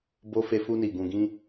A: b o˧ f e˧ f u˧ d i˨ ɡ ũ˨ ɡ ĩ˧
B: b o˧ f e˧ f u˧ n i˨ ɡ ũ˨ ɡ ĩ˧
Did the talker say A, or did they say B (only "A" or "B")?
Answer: B